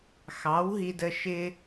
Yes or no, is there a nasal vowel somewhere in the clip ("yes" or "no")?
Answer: no